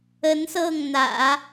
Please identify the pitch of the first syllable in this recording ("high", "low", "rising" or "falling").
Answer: rising